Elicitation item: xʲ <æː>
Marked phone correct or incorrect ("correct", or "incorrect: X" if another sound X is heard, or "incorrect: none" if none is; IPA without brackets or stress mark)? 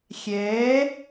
incorrect: ɛː